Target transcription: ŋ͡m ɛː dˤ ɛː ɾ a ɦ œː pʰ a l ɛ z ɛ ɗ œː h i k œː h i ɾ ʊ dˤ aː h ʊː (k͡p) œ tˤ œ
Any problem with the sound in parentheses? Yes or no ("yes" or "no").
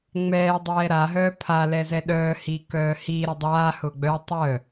yes